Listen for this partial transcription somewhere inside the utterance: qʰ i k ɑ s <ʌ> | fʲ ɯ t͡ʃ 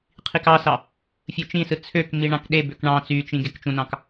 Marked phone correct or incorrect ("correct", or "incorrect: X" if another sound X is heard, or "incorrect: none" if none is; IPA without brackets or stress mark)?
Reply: incorrect: ɑ